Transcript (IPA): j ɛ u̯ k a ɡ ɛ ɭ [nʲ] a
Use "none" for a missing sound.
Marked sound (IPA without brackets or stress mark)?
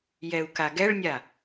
nʲ